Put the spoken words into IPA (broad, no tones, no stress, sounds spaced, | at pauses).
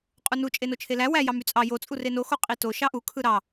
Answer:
qʼ u n u t͡ʃʼ e n o t͡ʃʰ e l æ w æ j ɑ m y t͡sʼ ɑ j o t͡sʼ u r e n o x o qʼ i t o ʃ ɑ ʔ u kʰ ɯ ɾ ɑ